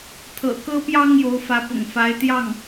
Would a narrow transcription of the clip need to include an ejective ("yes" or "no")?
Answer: no